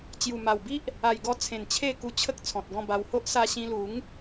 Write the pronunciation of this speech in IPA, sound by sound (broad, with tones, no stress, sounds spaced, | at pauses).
t͡ɕ j u˨˩ m a˨˩ w b i˦ ʔ | a˨˩ j ɡ ɔ˧ t͡sʰ ẽ˨˩ n t͡ɕʰ e˥˧ k u˧ t͡ɕʰ ə˦ k̚ t͡sʰ ɔ̃˨ t̚ ɡ ɔ̃˥˧ b a˧ w h o˦ ʔ s a˧ ɕ ĩ˧ l u˨˦ ŋ